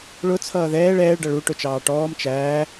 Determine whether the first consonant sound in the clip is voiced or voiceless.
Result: voiced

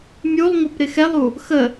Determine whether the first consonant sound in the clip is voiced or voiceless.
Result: voiced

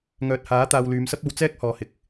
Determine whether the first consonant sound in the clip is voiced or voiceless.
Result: voiced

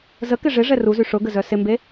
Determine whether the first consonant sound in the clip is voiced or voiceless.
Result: voiced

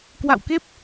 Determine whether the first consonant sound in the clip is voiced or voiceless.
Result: voiceless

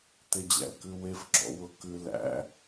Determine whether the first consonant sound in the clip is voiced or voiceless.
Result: voiceless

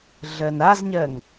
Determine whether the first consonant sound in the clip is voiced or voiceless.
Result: voiced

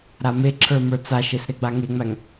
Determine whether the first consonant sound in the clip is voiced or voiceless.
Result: voiced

